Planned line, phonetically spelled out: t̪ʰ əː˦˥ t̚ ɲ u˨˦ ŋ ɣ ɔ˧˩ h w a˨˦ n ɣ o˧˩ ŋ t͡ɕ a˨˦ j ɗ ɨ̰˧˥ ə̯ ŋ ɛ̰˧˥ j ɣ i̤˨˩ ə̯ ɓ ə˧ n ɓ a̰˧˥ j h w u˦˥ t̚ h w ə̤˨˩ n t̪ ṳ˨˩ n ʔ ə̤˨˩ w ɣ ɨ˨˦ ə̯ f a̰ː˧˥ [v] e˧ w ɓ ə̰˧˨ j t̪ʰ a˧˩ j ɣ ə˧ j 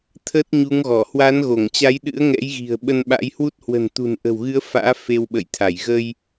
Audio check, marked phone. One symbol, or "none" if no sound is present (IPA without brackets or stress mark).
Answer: f